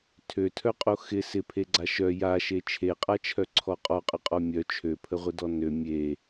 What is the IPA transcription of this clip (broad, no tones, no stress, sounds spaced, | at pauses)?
tʰ ø tʰ œ qʼ o x ɪ s ɪ pʰ e ɡ͡ǀ a ʃ œ j a ʃ e t͡ʃʰ e qʼ a t͡ʃʰ œ ǀʰ ɔ qʼ ɔ qʼ ə qʼ ɔ mʲ œ t͡ʃʰ ø pʰ ə ʁʷ ɪ d ɔ n ø mʲ e